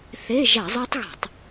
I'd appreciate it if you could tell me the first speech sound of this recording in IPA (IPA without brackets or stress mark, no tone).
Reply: θ